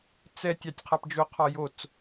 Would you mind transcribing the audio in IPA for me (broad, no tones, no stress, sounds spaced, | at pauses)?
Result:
t͡s ɛ tʲ ɑ tʲ qʰ a p d͡ʒ o qʰ ɒ j o t͡s